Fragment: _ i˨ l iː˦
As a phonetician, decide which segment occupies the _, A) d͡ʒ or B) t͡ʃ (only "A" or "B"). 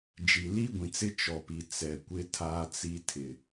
A